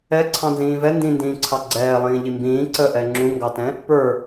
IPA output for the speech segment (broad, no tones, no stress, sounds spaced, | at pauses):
ɛ ǀʰ ɑ̃ n z ĩː v ɛ n d ĩ n d ĩː ǀʰ ɑ ɡ͡ǀ ɛː lˠ ĩː ʎ i m b ĩː ǀ ə ʔ ɛ ŋ͡ǁ ũ ŋ ɡ ɑ t ɛ̃ | p ə˞